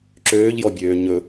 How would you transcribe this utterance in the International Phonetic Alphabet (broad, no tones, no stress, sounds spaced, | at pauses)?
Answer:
ǁ øː ʎ j ɔ bʲ øː ɲ ɵ